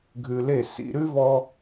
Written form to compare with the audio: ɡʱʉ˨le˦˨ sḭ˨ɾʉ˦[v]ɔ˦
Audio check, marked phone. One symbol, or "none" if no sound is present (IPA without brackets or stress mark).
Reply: v